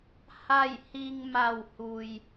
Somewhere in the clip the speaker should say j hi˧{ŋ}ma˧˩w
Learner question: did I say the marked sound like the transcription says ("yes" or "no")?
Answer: yes